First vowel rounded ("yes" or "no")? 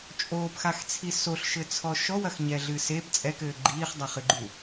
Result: yes